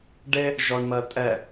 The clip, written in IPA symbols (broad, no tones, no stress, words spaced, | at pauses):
ɖe | ʒɔɳmɜtʼɛ